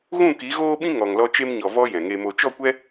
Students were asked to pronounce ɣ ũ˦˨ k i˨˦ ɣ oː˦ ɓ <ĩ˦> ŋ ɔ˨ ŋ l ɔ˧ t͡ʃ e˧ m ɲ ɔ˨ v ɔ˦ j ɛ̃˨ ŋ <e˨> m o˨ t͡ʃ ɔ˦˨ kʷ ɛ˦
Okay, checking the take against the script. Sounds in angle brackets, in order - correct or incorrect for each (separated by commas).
correct, incorrect